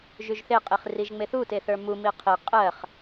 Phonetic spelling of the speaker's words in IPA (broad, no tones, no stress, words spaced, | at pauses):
ʒyʒθeqʼiχ riʒŋ͡meθute θə˞mumi qʰi qʼɜχ